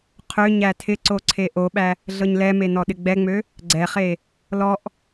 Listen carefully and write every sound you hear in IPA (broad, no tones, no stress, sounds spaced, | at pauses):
qʰ ø ɲ æ tʰ ɪ ǀ o ǀʰ e ʔ o ɓ æ | ɮ ɤ ɲ l ɛ m e n ɔ ɗ ɪ ɡ͡b ɛ ŋ͡m ø | ɡ͡ǀ ɛ χ e | l ɔ ʔ